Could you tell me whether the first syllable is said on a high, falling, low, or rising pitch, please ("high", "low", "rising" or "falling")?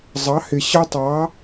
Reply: rising